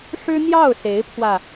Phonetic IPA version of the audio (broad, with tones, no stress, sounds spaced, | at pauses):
ʂ ɻ̩˥ n̪ j ɑ˥˩ ʊ̯ s e˧˥ ɪ̯ pʰ w ä˧